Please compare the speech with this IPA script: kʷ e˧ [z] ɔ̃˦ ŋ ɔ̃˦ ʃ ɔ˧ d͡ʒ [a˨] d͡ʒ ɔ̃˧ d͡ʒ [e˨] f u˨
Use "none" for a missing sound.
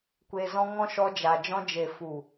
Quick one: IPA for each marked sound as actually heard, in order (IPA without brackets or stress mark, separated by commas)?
z, a˨, e˨